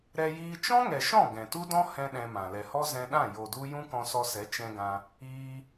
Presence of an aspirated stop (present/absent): absent